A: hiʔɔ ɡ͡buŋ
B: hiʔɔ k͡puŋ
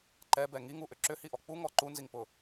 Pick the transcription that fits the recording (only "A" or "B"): B